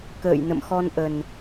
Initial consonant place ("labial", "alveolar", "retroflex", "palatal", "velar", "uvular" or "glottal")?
velar